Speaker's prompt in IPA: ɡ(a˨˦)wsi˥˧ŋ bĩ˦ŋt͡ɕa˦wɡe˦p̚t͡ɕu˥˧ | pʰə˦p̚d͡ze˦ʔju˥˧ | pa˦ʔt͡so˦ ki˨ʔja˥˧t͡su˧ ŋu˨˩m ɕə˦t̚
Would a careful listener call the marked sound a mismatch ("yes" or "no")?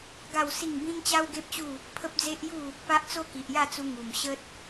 yes